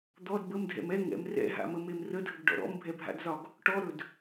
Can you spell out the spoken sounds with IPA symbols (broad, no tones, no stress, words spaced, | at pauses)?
d̪ɔd bəmdʱɛ̰m ɛ ŋɛ̰m rɛ̰ɦa̰məmem rədʱəɡɖɔ̰ ɾɔ̰mbʱɛbʱa̰dzɒɡ | ʈɔɾɵd